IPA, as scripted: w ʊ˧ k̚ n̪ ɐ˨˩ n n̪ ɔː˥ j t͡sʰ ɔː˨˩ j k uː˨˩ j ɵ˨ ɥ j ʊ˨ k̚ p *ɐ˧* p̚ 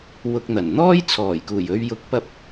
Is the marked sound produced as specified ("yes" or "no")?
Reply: no